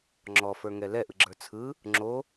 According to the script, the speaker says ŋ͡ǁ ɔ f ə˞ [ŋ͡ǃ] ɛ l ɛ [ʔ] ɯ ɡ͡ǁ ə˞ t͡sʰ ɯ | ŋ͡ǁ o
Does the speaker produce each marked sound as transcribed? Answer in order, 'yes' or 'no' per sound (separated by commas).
no, yes